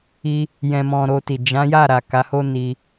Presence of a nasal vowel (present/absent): present